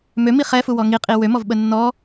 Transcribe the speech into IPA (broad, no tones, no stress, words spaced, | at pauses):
mømi χɛfuwɔ ŋiqʼi wømɔvɓə nːɔ